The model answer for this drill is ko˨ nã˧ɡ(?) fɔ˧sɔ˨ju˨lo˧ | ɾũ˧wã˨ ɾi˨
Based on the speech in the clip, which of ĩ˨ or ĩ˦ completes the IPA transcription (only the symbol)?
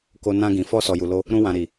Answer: ĩ˨